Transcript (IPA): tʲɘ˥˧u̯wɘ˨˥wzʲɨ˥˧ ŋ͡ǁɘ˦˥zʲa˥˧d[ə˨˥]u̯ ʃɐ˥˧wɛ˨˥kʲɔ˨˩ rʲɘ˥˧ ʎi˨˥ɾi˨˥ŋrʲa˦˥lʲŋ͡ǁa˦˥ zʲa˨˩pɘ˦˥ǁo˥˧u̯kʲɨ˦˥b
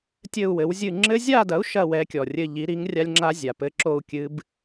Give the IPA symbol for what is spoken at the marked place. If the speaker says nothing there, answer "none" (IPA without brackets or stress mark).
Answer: ɐ˨˥